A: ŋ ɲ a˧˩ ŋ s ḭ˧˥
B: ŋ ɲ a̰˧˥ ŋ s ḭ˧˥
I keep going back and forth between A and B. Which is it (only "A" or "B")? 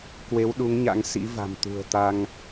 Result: B